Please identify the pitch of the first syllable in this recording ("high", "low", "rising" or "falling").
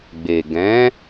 low